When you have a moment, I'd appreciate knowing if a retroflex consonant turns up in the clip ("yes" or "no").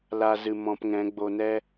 no